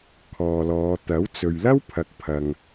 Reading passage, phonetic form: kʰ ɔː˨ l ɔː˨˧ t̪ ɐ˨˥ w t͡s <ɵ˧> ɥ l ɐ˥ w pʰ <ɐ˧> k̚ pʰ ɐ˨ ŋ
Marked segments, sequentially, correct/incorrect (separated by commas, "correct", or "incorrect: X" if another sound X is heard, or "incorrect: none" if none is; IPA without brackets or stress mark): incorrect: ɵ˨, incorrect: ɐ˨